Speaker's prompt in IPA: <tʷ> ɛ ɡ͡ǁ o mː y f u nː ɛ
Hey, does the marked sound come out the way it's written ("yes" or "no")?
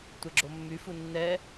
yes